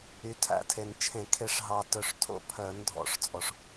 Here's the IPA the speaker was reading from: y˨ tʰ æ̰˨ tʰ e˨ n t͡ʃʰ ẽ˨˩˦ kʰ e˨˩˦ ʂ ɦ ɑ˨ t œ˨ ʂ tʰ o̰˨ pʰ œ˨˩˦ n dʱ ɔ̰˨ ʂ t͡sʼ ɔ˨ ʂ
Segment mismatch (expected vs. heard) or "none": none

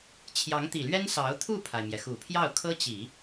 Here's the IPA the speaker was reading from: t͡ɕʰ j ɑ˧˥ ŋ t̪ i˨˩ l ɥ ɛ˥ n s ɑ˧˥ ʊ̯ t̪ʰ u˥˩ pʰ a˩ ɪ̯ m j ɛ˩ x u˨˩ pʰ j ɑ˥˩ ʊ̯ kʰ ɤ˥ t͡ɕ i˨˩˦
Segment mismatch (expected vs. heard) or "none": none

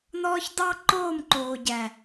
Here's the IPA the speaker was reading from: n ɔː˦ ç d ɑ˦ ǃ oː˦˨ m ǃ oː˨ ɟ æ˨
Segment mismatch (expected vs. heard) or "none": none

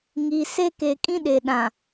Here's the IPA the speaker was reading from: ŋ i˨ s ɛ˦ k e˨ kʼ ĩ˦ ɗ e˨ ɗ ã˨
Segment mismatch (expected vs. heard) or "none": ɛ˦ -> e˦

